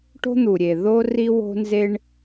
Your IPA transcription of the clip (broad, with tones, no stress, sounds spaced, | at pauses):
ʈ o̤˦ n̪ u˨ ɾʲ e˨ ð o˦ r i˦ w o̤˦ n z e˦ ɳ